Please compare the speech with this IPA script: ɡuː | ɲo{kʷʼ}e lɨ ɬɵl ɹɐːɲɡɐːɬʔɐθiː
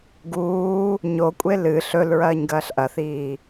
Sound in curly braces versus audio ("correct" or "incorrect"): correct